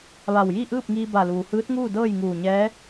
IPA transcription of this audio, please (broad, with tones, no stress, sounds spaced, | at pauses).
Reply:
ʋ a˧˩ w j i˥˨ ʔ ɯː˥˨ p̚ ŋ iː˧ b a˧˩ l uː˩ h ɯː˧˥ t̚ ŋ uː˥˨ d ɤː˥˨ j ŋ uː˧˩ ɲ ɛː˧˥